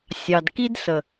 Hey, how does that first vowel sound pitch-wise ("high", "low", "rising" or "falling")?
low